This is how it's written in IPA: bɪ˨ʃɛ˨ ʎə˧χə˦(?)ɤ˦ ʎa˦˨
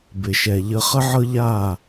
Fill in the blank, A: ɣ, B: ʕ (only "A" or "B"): B